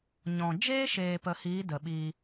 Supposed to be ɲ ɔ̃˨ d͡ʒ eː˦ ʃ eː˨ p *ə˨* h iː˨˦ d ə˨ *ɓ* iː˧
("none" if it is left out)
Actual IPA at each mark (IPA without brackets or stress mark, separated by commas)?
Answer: ə˨, ɓ